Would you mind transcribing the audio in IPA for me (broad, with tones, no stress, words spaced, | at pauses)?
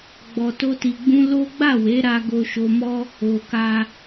ɡ͡bɔ˧to˦ti˧ɡ͡bũ˦ lo˦ ɡ͡ba˦˨we˨˦ɾa˧ ɡo˧ʃo˧mɔ˦ | o˧ka˦